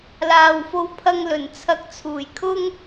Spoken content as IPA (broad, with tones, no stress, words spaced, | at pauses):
laː˨wfo˧wpʰɐ˧ŋlɵ˨˩n t͡sʰɐ˨˥k̚t͡sʰuː˨˩j kʰʊ˥ŋ